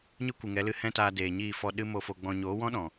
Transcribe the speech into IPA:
ɲ ɨ˦ kʷ ɨ˨ ŋ ɛ˨˦ l ɨ˧ h ɛ̃˦ t aː˧ d eː˨ ɲ iː˦˨ f ɔ˧ ɗ ɨ˦ m o˧ f o˧ ɡ͡b ɔ̃˧ ɲ oː˨˦ w ɔ̃˦ ɗ ɔ̃˨

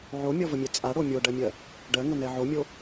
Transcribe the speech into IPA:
ʕ o mʲ ɔ v ə mʲ ɛ t͡sʼ a ɽ o mʲ o ɖ ɜ mʲ ɜ | ɖ ɜ ŋ ə n ɛ ʕ o mʲ o

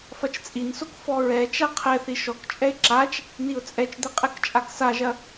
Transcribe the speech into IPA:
f ɐ t͡ʃ t͡sʼ i n s o k f ɔ ɹ ɛ t͡ʃ a qʰ ɛ θ i ʃ ɔ k t͡ʃʼ ɛ ɪ̯ ǁ a t͡ʃ | n i ʊ̯ t͡sʼ ɛ t͡ʃ d̪ ɛ qʼ ɛ k t͡ʃʼ a k s a ʒ ɐ

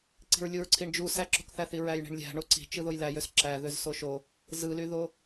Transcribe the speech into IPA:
ǀ i̤ ɹ lʲ u ɹ ǀʰ i ɳ d͡ʒ u s æ ǁ o̤ k θ æ θ i ɹ æ j ɳ i̤ ɳ lʲ æ̤ ɳ o ǀ i̤ t͡ʃ ɯ ð o j l æ j ø s ǁ æ ð ø z s o ʃ o | z ɯ l y ð o

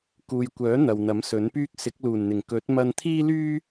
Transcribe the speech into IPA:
k uː˨ j kʷ œː˨˥ n̪ ɐ˨ w n̪ ɐ˨˥ m s ɵ˨˥ n p yː˥ k̚ s ɪ˨˥ k̚ l uː˨˩ n n̪ ɪ˨˩ ŋ k ɵ˨˥ t̚ m ɐ˧ n t̪ʰ iː˥ l yː˥

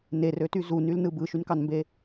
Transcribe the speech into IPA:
n e r ø t y z u n y l n ɯ b ɯ ʃ y n k ɑ n m b e

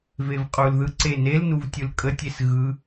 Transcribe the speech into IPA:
v e v qʼ u l ð ɯ ǀ e n e l n u v tʲ ɯ l kʼ ə tʲ e s ɣ ɯ

